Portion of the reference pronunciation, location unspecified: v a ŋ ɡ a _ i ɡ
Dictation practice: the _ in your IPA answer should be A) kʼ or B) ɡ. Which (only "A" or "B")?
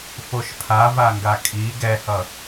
A